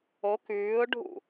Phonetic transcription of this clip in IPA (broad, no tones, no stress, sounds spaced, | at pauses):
o k ʉː ʊ̯ ɖʱ ṵ